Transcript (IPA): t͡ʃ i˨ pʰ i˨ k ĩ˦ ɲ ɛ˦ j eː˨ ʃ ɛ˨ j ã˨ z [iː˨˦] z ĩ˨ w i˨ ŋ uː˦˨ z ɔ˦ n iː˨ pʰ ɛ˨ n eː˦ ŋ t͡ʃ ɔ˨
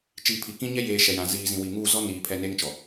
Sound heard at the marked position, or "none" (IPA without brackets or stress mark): iː˨